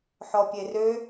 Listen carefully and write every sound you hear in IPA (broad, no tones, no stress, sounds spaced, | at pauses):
ħ ɔ pʲ e r ø